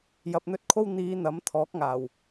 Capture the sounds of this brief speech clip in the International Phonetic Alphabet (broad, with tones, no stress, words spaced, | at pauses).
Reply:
jɐ˨p̚n̪ɵ˧t̚kʰo˧w n̪iː˨˧ n̪ɐ˨˥m t̪ʰɔː˨˥k̚ŋaː˨˩w